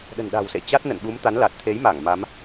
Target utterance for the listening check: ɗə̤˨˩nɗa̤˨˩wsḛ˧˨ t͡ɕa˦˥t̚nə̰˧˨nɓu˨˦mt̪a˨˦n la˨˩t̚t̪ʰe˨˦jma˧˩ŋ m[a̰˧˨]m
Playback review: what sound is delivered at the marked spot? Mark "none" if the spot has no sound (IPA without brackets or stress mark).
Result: a˨˦